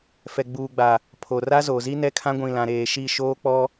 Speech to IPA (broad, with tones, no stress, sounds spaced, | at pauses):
f ɛ˨ ɡ͡b uː˨ ɡ͡b a˨ | pʰ o˨ r a˦ z o˨ z i˦ n ɛ˦ kʰ ã˦ ɡʷ ĩ˨ l ã˨ ɾ eː˨ ʃ i˦˨ ʃ oː˦ k͡p ɔ˦